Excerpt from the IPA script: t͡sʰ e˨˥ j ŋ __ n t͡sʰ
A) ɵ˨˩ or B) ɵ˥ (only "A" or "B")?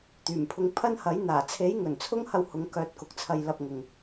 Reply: A